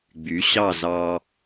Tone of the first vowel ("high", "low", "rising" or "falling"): rising